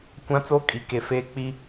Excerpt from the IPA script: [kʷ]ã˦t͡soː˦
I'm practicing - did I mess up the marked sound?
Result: no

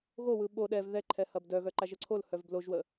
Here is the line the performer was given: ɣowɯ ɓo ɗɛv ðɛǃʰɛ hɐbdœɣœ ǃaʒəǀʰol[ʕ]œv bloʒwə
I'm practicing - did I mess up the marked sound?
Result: yes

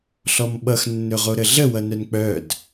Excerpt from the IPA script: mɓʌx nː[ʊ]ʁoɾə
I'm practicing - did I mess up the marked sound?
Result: yes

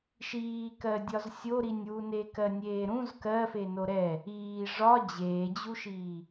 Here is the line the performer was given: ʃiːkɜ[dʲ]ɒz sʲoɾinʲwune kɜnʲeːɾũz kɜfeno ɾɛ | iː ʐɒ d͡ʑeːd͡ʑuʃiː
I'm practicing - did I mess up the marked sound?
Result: no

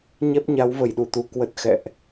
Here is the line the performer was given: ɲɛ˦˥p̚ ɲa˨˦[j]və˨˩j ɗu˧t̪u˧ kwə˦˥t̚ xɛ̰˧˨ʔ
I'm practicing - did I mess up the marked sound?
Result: yes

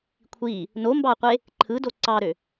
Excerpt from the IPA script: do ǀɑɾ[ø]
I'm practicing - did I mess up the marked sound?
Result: no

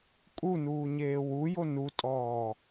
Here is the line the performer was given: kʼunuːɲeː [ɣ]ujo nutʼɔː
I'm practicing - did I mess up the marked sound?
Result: yes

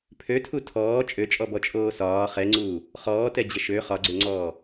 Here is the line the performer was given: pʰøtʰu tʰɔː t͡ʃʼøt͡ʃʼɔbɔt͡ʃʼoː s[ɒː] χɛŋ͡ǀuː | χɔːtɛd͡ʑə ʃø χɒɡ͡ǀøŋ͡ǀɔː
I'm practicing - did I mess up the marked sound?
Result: no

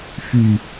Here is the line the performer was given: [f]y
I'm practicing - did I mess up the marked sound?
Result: no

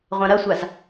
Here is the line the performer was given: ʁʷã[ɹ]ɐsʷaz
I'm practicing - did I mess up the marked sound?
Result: yes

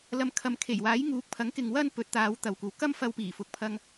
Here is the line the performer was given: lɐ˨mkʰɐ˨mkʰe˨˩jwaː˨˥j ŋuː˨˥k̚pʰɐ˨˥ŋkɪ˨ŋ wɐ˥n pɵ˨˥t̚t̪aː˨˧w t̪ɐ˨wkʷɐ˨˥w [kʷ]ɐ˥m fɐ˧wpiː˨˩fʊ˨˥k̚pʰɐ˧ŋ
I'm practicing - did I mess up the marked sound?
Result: yes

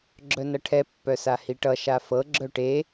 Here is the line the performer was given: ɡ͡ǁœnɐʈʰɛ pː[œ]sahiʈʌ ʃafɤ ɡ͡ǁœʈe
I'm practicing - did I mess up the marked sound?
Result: no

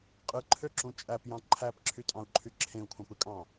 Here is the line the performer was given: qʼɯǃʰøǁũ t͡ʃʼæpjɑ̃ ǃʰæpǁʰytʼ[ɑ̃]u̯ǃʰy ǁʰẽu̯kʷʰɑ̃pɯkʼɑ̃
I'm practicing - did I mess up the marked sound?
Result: no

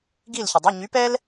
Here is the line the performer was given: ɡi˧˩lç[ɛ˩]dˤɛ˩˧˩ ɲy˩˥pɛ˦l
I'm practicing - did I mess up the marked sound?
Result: yes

